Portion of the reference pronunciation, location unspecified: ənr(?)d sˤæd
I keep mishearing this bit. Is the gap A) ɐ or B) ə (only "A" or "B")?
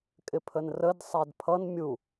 B